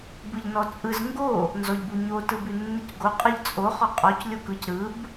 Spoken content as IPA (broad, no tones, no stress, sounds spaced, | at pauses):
b ɯ ʎ n ɔ t͡sʼ ɯ z ŋ ɡ o | n z ɔ ʎ b u ɲ o t ɯ b ʉ nː ɯ c ɡ o qʼ ɯ ʎ t͡sʼ o χ ɔ qʼ ɔ c lʲ o k ɯ c ɾ ɯ b